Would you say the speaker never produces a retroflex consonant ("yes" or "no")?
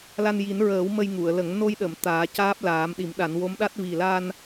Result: yes